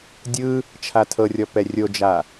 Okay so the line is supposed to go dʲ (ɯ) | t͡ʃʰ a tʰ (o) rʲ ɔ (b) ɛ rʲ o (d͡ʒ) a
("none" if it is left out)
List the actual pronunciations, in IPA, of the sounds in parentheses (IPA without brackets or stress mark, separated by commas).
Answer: ɯ, ɤ, p, d͡ʒ